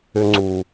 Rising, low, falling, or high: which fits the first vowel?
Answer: high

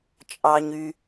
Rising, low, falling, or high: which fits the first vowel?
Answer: low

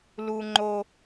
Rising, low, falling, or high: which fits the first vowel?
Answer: high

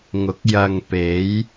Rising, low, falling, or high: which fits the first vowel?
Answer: rising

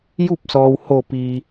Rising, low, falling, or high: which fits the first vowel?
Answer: falling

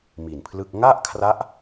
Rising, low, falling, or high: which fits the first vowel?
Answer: low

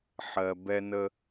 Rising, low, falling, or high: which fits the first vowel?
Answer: low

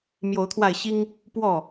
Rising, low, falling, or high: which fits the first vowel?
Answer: rising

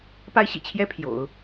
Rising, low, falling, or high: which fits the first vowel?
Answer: high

